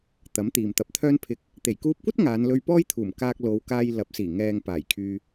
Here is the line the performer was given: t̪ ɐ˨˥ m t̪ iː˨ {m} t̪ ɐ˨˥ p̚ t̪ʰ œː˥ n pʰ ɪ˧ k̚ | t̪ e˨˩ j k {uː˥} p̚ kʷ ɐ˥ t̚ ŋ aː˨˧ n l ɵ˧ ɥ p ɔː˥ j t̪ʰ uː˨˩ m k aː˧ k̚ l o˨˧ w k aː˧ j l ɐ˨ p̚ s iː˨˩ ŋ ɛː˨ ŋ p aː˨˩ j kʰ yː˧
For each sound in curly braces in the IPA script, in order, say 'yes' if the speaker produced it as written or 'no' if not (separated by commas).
yes, no